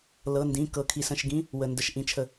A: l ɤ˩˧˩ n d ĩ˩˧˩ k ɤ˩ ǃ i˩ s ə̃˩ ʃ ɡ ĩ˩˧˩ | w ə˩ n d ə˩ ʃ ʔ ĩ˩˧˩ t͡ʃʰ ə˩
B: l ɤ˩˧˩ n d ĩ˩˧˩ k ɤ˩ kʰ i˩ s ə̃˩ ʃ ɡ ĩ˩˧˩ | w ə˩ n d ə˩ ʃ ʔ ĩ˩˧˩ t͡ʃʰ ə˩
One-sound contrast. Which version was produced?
B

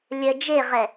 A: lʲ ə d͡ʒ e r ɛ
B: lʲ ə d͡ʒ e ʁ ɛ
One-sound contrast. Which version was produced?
B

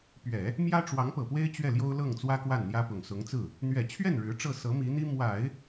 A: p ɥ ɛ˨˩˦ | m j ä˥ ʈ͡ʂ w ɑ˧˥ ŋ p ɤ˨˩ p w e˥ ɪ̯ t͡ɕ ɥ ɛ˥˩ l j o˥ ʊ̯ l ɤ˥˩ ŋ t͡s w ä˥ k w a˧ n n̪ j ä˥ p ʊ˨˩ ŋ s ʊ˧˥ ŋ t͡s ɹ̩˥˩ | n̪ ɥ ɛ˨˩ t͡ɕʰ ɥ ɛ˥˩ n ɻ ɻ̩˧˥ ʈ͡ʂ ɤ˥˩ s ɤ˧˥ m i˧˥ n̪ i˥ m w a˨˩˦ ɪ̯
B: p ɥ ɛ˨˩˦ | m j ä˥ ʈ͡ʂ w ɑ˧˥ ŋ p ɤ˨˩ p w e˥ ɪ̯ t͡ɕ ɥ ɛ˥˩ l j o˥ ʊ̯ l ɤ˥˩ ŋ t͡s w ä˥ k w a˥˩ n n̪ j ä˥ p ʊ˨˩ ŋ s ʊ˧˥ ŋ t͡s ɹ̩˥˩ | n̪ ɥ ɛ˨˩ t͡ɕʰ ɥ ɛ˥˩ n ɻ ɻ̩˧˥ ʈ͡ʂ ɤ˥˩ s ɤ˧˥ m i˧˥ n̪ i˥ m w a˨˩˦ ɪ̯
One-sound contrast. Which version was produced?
B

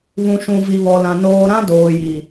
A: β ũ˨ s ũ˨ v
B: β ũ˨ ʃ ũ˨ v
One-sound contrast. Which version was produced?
B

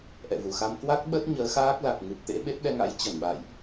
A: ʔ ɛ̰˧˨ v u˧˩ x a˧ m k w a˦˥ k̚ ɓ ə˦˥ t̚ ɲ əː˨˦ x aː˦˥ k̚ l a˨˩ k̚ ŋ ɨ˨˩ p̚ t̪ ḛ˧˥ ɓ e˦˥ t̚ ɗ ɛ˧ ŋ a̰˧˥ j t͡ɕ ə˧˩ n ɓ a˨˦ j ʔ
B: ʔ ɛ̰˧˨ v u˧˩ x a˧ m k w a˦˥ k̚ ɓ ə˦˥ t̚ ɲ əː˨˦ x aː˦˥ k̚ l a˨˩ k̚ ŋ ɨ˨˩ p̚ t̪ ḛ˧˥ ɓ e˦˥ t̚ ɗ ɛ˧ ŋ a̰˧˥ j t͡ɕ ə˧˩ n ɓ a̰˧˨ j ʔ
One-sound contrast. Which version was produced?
B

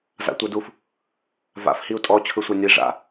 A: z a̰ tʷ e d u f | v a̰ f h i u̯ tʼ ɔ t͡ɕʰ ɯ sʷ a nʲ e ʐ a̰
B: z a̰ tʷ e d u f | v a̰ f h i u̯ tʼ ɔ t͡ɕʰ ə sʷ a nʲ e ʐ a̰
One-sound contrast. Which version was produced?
A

